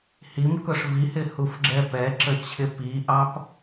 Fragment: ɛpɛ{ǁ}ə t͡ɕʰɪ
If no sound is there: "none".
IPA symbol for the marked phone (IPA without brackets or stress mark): ǁ